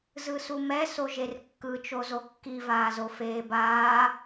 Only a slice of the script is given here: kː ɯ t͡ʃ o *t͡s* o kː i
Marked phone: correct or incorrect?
incorrect